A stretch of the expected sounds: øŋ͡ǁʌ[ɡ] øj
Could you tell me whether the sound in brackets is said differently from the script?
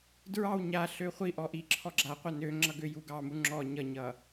no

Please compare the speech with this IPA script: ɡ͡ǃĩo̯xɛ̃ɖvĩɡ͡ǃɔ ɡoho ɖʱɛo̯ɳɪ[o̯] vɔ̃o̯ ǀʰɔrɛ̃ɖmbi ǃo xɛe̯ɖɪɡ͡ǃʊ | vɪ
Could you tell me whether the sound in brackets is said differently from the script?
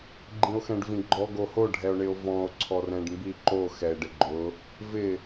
no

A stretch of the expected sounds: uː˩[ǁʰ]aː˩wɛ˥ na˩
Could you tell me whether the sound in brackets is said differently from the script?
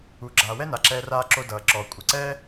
yes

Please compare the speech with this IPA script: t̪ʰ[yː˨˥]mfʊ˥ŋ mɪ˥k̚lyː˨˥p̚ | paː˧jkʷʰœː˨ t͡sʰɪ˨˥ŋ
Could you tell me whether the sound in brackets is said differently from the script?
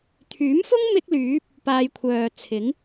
no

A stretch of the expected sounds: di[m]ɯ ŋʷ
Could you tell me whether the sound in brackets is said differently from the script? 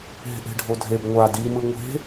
no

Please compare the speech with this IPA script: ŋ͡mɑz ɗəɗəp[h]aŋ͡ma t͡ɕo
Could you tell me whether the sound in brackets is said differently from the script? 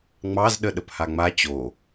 no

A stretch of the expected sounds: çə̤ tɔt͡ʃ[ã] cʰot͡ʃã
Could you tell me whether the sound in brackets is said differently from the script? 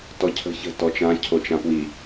no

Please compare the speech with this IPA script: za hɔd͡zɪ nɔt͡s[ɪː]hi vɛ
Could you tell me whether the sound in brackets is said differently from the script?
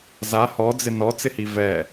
yes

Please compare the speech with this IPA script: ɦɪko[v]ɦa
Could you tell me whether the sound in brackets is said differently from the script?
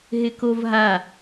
no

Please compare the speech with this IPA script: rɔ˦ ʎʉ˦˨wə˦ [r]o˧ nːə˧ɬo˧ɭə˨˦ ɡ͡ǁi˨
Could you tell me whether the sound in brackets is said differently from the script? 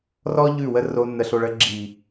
no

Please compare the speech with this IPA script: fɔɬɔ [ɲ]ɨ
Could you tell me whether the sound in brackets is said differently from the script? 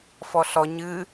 no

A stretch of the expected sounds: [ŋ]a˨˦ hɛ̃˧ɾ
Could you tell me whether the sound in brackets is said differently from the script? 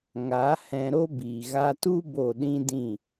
no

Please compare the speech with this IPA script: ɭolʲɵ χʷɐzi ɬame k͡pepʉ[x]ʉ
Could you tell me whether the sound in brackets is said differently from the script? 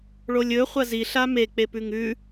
yes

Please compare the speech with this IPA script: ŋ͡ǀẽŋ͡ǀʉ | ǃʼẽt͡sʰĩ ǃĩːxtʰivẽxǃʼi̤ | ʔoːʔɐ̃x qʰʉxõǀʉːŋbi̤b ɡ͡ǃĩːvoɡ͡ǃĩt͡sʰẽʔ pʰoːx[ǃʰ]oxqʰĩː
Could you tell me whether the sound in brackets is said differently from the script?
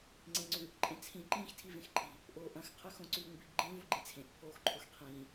no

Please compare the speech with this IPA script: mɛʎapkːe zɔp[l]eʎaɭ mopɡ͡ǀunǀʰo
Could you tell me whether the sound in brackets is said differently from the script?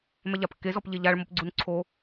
yes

